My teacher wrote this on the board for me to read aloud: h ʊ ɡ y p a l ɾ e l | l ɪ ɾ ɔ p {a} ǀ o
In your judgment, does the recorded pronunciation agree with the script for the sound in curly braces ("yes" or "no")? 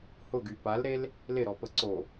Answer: no